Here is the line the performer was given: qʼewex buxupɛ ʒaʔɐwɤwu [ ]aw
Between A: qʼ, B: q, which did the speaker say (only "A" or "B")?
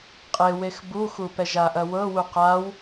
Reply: B